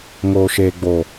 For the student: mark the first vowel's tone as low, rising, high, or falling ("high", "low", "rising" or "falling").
low